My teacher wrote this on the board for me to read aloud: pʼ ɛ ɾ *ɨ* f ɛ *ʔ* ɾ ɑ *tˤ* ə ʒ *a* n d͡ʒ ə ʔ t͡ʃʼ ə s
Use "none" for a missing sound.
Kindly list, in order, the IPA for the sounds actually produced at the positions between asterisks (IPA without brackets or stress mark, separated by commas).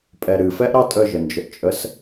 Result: ɨ, ʔ, tʼ, ə